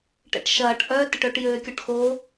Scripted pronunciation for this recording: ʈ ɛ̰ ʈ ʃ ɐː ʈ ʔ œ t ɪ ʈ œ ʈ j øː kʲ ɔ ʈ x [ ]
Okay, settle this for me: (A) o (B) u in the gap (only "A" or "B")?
A